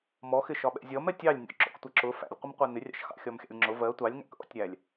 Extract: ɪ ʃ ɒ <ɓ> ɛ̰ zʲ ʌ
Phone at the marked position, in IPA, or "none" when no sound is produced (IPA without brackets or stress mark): ɓ